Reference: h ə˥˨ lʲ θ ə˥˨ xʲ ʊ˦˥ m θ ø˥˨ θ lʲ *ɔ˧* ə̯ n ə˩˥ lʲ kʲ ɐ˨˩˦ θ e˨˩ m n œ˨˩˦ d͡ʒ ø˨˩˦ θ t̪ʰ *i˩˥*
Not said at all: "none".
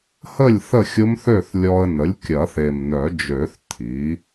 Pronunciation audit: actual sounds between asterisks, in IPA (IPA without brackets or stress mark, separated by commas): ɔ˧, i˩˥